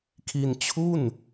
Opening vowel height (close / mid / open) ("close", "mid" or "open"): close